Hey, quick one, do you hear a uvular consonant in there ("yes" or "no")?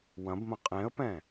yes